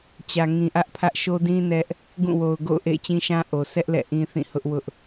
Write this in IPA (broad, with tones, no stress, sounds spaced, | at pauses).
t͡ɕ ä˨ ŋ ĩ˨ ʔ ä˦ ʔ pʰ ä˦ ʔ ʃ o˦ d ĩ˦ n ɛ˦ ʔ | ɡ ũ˦˨ w o˨ ʊ̯ ɡ o̰˦˨ ʊ̯ ʔ ḛ˦˨ ɪ̯ t͡ɕ ĩ˦ ʃ ã˦ ʔ o˨ sʰ ɛ˦ ʔ l ɛ̰˦˨ ʔ ĩ˦ θ ĩ˦˨ h ʊ˦ ʔ w ʊ˦ ʔ